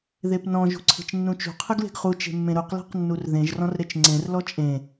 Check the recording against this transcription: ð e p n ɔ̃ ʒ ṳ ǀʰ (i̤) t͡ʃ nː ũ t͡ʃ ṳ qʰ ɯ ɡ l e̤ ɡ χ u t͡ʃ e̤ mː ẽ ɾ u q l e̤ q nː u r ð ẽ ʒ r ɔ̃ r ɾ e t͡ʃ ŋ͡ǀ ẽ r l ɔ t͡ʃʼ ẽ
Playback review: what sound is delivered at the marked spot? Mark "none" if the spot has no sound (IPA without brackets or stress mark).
e̤